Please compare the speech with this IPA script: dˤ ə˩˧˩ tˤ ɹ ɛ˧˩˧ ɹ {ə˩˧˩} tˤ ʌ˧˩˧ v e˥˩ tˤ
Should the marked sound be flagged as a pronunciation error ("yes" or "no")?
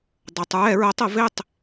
yes